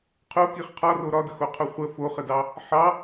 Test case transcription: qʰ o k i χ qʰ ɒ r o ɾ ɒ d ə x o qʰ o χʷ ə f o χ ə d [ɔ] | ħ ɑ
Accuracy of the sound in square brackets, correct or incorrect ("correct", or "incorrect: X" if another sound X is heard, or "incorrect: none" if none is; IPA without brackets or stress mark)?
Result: incorrect: ɑ